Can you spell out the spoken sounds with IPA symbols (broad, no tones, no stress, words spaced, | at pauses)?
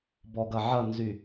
bɔɡɐʕɐnzy